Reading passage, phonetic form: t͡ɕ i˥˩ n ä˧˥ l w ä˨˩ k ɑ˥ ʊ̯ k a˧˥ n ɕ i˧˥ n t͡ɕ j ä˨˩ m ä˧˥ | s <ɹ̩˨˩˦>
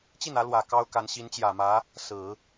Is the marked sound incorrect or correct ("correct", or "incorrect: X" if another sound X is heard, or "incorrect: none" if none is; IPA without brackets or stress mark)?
correct